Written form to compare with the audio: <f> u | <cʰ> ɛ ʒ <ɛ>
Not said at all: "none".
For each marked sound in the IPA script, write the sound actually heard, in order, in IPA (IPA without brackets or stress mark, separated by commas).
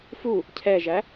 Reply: f, cʰ, æ